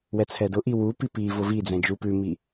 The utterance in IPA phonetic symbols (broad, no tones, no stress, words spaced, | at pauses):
wɛt͡sʰɛdʊʔi wupi pi vʊvid͡zɛ̃ d͡ʒupʉmi